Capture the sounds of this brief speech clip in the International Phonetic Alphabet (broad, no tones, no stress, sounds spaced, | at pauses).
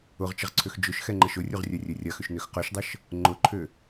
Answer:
ʊ ʁ t͡ʃ ə ʁ ǀʰ ʏ x d͡ʒ ʊ ʃ x ɛ ŋ͡ǃ ə ʃ ʊ rʲ u ʁ rʲ œ rʲ ø rʲ ɐ x ʏ ʃ n ø x q œ ʃ dˤ ə ʃ | ŋ͡ǃ ʊ ǃʰ ʏ